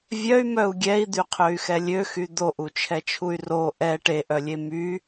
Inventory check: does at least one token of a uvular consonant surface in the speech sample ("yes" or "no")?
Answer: yes